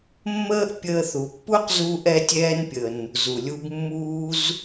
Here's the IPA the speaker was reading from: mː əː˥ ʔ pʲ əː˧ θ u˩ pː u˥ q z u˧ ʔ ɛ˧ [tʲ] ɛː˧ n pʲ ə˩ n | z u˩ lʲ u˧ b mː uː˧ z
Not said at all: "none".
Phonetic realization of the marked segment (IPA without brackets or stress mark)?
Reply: tʲ